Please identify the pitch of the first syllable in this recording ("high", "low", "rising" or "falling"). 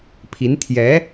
rising